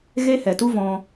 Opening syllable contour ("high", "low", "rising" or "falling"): high